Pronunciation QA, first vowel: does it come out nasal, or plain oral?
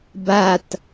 oral